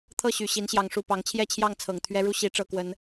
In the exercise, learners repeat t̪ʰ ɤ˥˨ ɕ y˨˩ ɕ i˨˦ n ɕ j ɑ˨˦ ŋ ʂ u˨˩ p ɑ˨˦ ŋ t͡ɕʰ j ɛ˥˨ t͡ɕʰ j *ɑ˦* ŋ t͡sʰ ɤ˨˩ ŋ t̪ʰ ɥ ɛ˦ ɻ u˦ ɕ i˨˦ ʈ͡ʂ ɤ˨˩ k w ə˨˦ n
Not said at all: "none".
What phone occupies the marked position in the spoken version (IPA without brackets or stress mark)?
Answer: ɑ˥˨